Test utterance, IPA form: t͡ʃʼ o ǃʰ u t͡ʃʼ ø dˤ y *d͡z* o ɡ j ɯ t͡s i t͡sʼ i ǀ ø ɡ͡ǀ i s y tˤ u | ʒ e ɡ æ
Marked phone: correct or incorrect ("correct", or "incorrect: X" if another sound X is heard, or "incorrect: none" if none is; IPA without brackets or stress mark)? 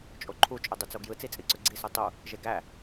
incorrect: t͡s